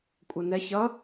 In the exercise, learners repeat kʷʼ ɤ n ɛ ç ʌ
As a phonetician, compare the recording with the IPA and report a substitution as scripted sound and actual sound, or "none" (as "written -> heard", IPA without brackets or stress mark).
none